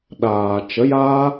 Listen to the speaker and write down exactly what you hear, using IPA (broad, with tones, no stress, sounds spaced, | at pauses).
ɗ aː˨ t͡ʃ ə˨˦ j aː˦